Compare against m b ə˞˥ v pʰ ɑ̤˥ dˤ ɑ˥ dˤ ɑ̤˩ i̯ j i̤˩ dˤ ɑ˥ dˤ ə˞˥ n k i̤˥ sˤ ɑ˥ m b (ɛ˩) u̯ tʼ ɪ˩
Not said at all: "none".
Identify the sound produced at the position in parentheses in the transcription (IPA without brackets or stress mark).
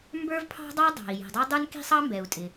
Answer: ɛ˩